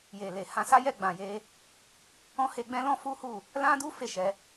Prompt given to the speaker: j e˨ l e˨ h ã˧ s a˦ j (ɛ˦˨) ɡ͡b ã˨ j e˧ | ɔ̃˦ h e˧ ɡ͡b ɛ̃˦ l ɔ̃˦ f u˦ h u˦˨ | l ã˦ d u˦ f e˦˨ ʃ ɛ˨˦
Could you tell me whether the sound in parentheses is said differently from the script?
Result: no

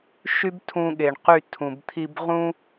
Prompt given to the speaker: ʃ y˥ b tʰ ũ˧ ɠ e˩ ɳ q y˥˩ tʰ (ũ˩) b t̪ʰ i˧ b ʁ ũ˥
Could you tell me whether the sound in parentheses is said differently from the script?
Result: no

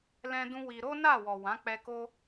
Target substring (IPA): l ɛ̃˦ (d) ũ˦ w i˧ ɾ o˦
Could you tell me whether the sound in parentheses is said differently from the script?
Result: no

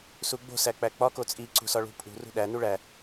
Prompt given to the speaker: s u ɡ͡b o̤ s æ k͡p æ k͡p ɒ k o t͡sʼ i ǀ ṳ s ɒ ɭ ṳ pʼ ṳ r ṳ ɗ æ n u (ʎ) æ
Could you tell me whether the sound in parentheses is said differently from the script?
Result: yes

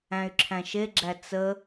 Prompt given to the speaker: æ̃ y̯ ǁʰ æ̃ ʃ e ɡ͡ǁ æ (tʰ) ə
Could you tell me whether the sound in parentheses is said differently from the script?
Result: yes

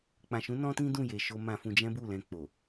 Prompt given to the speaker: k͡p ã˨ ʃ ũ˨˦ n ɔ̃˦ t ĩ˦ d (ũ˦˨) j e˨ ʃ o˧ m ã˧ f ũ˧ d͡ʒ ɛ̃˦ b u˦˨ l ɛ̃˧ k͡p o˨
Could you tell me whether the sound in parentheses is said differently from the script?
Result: no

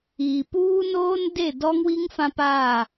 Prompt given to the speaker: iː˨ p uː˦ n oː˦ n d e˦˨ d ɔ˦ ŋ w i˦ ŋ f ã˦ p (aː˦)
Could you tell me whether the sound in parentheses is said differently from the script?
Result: yes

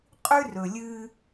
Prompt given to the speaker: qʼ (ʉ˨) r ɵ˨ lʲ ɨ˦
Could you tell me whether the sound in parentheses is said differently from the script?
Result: yes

